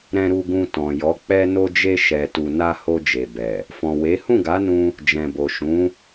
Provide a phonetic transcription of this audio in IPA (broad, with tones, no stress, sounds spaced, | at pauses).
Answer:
ɾ ɛ̃˨ ɾ u˨ ɡ ũ˨ t ɔ̃˨ j ɔ˨˦ k͡p ɛ˧ n o˧ d͡ʒ e˧ ʃ ɛ˨ t u˨ n a˧ h o˧ d͡ʒ e˨ b ɛ˨ | f ɔ̃˨ w e˨˦ h ũ˦˨ ɡ a˨˦ n ũ˧ | d͡ʒ ɛ̃˨ b o˨ ʃ ũ˨˦